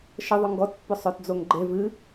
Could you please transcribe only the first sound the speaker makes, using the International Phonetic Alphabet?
ʃ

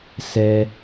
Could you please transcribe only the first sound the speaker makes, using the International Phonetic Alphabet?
s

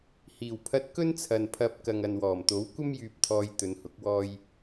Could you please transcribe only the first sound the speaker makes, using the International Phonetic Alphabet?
h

